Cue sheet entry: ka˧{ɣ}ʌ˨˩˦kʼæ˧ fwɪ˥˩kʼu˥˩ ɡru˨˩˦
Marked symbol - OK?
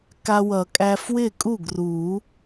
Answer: no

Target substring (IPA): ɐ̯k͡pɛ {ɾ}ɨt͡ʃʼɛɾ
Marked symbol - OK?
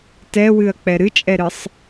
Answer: yes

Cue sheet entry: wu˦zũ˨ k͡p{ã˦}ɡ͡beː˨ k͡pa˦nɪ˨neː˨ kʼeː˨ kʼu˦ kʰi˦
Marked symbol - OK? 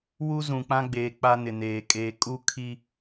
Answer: yes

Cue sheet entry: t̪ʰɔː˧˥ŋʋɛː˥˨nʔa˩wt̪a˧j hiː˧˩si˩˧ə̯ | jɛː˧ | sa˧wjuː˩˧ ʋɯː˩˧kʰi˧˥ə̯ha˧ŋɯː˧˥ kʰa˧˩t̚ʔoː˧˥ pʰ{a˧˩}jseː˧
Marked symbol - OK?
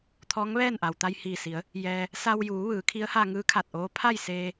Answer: no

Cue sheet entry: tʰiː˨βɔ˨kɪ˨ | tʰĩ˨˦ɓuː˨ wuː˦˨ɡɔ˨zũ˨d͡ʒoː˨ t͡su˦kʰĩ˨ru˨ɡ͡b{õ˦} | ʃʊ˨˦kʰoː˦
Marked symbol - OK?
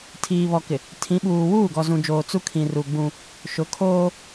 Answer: no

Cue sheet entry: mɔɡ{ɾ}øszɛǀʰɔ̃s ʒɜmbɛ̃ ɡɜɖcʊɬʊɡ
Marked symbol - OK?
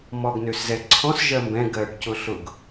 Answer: no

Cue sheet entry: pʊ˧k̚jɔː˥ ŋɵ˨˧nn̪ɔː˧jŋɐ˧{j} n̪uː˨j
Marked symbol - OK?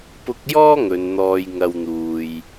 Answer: no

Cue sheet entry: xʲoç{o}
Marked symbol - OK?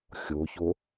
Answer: yes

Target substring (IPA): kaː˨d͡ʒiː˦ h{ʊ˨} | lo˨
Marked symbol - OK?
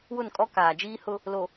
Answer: no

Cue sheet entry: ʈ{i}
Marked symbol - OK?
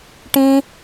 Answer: no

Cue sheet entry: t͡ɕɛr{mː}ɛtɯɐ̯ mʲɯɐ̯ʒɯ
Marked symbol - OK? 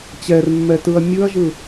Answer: yes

